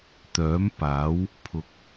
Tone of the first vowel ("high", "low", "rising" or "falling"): rising